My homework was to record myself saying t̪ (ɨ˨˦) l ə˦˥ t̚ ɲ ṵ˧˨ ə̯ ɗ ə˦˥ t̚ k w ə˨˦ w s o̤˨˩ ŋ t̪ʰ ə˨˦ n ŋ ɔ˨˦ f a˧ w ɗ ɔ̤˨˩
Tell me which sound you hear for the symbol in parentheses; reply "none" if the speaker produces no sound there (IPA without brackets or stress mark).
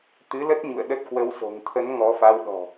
ɨ˨˦